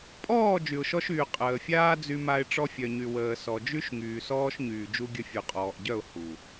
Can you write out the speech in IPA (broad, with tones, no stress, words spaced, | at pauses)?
pʼɔː˦˨ d͡ʒy˨ʊ̯ʃɔ˦ʃyː˨ qʼəː˨fʲaː˦ d͡zy˦ma˦ɪ̯ ʈ͡ʂɔ˦fʲœ˨ɲy˨ wəː˨ sɔ˨d͡ʒy˦ʃ ŋyː˨sɔː˦ʃɲyː˨ d͡ʒu˦ɡʲə˦ fʲu˨qʼɔː˨ʔɟœ˦˨ʊ̯ hu˨